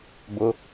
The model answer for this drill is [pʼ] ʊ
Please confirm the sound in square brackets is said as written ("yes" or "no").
no